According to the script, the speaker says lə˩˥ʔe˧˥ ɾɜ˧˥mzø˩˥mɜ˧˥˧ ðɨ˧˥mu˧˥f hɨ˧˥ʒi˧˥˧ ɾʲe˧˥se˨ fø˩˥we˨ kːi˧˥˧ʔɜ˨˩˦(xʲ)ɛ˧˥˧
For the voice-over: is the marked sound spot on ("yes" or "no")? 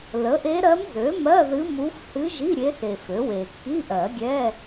no